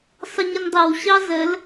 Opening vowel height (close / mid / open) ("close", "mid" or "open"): mid